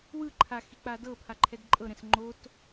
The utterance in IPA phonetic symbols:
w ɯ ǃʰ a x i k͡p a d ɤ pʰ a ǃʰ ɛ d ǃʼ ɤ ɾ ɛ̃ s ŋ͡ǃ o t

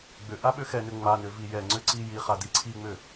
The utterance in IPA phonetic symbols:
ɡ͡b ʏ ʔ a ɓ ʏ x ɛ n ʏ ŋ͡m a n ʏ v i j ɛ ŋ͡ǀ ʏ ǀ i j i χ a d i ǀʰ i ŋ͡m ʏ

